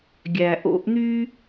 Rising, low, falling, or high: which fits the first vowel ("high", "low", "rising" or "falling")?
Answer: low